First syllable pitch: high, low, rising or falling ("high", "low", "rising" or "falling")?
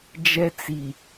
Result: high